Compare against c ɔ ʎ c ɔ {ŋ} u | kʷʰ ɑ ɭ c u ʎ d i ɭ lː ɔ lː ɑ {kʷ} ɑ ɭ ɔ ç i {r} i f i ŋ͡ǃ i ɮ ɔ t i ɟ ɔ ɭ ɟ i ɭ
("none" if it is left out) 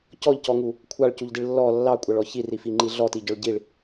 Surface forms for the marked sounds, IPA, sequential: ŋ, kʷʼ, r

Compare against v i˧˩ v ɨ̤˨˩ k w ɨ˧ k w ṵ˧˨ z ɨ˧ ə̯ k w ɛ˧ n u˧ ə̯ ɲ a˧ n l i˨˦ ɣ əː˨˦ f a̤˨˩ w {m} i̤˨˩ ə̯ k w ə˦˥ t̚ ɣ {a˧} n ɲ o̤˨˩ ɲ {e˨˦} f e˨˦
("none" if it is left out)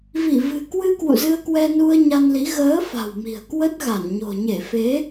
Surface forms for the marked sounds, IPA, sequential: m, a˧˩, e˧˩

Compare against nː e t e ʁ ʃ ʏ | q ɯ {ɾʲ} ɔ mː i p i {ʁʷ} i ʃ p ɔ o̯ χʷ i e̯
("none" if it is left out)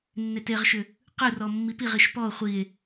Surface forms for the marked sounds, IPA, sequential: r, ʁ

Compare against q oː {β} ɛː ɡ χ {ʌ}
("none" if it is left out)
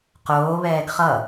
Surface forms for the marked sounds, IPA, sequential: β, ʌ

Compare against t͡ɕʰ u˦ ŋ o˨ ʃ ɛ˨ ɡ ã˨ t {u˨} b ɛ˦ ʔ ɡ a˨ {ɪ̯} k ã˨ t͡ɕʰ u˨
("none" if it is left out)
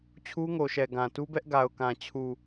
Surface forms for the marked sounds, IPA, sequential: u˦, ʊ̯

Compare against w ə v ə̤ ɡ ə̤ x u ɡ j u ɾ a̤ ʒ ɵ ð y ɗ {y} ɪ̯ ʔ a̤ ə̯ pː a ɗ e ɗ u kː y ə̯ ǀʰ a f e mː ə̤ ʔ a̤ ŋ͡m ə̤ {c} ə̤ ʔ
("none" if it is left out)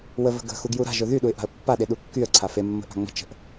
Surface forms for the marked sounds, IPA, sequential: u, t͡ʃ

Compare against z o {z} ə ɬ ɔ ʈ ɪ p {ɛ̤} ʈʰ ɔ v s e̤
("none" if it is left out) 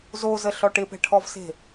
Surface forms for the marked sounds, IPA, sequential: z, ɛ̤

